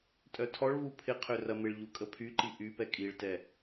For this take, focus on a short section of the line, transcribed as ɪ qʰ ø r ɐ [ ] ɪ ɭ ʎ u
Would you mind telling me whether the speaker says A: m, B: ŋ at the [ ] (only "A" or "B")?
A